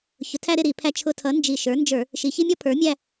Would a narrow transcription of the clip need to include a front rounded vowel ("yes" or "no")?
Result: no